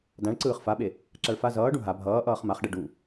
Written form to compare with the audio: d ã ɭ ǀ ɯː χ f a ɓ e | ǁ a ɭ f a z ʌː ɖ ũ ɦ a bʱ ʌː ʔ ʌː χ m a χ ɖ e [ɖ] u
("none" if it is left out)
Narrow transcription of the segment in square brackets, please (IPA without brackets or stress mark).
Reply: ɖ